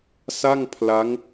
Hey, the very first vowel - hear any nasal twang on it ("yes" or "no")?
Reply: no